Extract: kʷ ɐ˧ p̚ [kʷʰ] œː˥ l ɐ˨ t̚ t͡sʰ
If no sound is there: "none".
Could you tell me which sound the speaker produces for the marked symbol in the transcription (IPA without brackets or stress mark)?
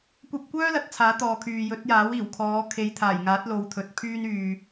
kʷ